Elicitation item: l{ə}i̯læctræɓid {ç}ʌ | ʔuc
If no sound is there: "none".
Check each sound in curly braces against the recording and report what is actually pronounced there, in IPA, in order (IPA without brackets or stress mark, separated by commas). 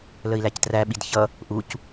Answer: ə, ç